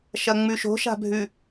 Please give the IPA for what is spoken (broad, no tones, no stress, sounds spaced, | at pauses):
ʃ ɐ ŋ͡m ʉ ʃ o̤ ʃ a̤ bʱ ʉ